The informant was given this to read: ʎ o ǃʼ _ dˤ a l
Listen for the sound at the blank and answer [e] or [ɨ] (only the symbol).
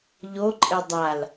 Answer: e